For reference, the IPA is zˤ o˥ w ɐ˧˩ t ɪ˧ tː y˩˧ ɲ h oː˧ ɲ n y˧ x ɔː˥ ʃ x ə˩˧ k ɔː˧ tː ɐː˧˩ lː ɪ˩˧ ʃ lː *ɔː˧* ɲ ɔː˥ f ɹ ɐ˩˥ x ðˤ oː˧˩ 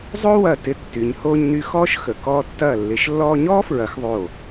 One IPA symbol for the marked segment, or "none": ɔː˧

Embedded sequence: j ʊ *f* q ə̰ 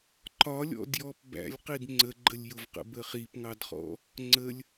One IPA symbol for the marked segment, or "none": v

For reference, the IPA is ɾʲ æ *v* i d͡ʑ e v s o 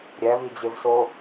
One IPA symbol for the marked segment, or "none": v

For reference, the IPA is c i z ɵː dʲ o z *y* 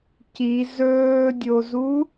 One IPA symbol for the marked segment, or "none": u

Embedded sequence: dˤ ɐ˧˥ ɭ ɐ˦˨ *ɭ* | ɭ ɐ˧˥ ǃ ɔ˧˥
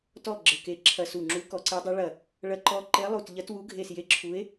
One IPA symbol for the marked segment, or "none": none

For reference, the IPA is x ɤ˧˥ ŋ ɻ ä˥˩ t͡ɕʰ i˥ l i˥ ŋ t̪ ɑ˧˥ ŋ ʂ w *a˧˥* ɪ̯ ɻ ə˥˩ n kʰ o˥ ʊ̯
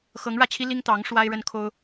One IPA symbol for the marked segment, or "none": a˥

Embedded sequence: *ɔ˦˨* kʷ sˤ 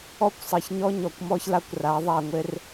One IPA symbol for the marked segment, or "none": ɔ˦˨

